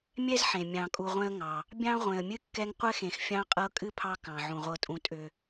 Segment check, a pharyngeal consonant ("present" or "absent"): present